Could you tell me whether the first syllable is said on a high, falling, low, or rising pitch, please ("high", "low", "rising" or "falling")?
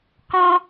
high